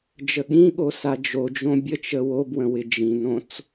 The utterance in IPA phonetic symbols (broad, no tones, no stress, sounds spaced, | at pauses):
d͡ʒ ə ɠ ĩ ɠ o s a d͡ʒ o d͡ʒ õ bʲ ə t͡ʃ ə w o b w ə̃ w ɪ d͡ʒ ĩ n õ t͡s